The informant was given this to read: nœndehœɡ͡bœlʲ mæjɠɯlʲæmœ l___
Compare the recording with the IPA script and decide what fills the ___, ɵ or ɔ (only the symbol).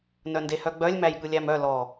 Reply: ɔ